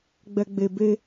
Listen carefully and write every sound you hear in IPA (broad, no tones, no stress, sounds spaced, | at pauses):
ɡ͡b ɛ ɡ͡b e b e